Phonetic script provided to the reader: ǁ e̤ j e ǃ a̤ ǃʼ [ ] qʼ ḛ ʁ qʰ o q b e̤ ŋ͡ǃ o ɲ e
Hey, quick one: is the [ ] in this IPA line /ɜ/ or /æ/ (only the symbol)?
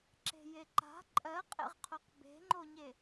ɜ